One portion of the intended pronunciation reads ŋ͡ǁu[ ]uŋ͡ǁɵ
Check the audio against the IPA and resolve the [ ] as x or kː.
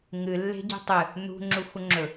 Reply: x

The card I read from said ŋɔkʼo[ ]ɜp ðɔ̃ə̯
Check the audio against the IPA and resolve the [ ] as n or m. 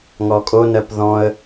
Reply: n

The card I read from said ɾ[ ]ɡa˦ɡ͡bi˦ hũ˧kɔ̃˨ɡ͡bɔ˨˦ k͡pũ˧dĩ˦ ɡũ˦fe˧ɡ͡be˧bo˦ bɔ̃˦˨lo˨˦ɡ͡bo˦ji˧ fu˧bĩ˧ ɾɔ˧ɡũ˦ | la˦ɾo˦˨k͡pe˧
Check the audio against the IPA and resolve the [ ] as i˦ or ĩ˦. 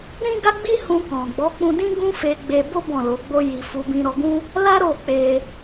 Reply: ĩ˦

